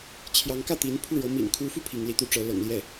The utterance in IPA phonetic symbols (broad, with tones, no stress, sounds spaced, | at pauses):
t͡ɕʰ j ɑ˧˥ ŋ k ä˥˩ t̪ i˧˥ n pʰ u˥˩ ɻ ɤ˧˥ m ḭ˨˩ n kʰ u˧˥ f u˧ pʰ i˧˥ ŋ l i˧˥ t̪ u˥ ʈ͡ʂ ɤ˧˥ l ɤ̰˨˩ ŋ l j ɛ˥˩